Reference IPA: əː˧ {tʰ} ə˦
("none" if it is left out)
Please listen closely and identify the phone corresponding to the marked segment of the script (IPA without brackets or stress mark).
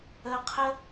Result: qʰ